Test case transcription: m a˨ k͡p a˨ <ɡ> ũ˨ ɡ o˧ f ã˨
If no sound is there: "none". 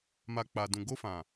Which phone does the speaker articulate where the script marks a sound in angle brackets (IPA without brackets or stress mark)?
d